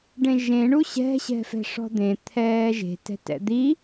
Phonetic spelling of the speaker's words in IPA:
ɖ ẽ ʒ ẽ ɳ u ɕ ɛ̤ ɕ ɛ̤ f ɛ̤ ʂ ɔ̤ d̪ ẽ t̪ʰ ɛː ʒ e̤ t ɛ̤ t ɛ̰ d̪ i

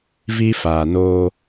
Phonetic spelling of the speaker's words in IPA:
v i˦ f aː˨ n oː˦

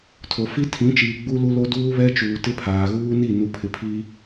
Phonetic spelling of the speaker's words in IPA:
tʰ o˨ f i˦ tʰ ĩ˨˦ t͡ʃ iː˨ ɡ͡b u˦ l u˦ l o˦ d uː˦ β ɛ˦ t͡ʃ uː˨ t ɪ˦ pʰ aː˨ ɣ uː˦ n i˦˨ n u˨ pʰ ɪ˨ pʰ i˦

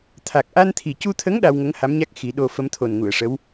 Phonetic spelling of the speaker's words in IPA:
t̪ʰ a˨˩ k̚ ʔ a˧ n t̪ʰ i˨˩ c u˧ t̪ʰ ə˧˥ ŋ ɗ a˧ w ŋ ə˧˥ ŋ h a˧˥ m ɲ a˦˥ k̚ x i˨˩˦ ɗ o˧ f ə˧˥ m t̪ʰ o˨˩ n ŋ u˨˩˨ ə̯ ʂ ə˧˥ w

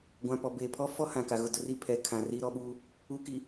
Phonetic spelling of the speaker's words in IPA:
ɡʷ ã˨ p ɔ˨ b eː˨ pʰ ɔ˦ f ɔ˦ h ã˨ k a˨ ɣ ʊ˦˨ d ʊ˦ r i˦ pʰ ɛ˨ kʰ ã˨ r iː˦ ɾ ɔ˦ ɓ uː˦ | u˨ k i˨

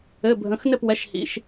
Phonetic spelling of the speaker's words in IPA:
ɘ˩˧˩ bʱ ə̃˩˧˩ x n ɘ˥˩ p w ɛ˩˧˩ ʃ h ḭ˩˧˩ ʃ

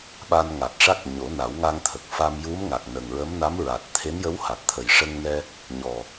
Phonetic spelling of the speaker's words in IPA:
ɓ a˧ n ŋ a˨˩ t̚ ʂ a˦˥ k̚ ɲ o˨˩˦ n a˨˩˦ w ŋ a˧ ŋ t̪ʰ ə˨˩ k̚ f a˧ m j u˧˥ m ŋ a˨˩ k̚ n ə˨˩ ŋ ɹ ə˧˥ m n a˧˥ m ɹ a˨˩ t̚ t̪ʰ e˧˥ n j ə˧˥ w h a˨˩ t̚ t̪ʰ ə˨˩ j ʂ ə˧ ŋ n ɛ˧ | ɲ ɔ˨˩

